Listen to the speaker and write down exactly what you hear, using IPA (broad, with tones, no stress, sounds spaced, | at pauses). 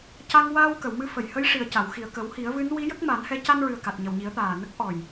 c a˧ ŋ w aː˧ w k ə˨˩˨ w m ɨ˧ f ə˨˩˨ j h ə˧˥ j ʂ i˨˩ ə̯ c a˨˩˨ w x i˨˩ ə̯ k ə˨˩˦ w h i˨˩˦ ə̯ v ɨ˧˥ n w i˧˥ j ə˦˥ k̚ m a˨˩˦ n h ɛ˧˥ c a˧ n ɹ ɨ˨˩ ə̯ k a˨˩ t̚ ɲ ə˨˩ w ɲ i˨˩˦ ə̯ t̪ aː˨˩ n ə˦˥ k̚ ʔ ɔ˨˩ j